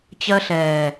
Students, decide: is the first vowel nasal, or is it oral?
oral